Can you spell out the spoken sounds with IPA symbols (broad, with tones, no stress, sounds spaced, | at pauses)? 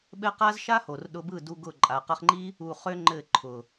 ɓ ɘ˦ q a˦ z ʃ a˦ h o˨ r ɗ ʊ˧ b ɯ˦˨ d u˧ ɡ ʊ˦˨ ǃʼ a˨ q ɘ˧ χ ŋ͡ǃ i˦ | u˧ χ ø˦ ŋ͡ǃ ɘ˦˨ ǃʰ ʊ˨